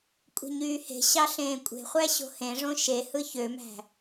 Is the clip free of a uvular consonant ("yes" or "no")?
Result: no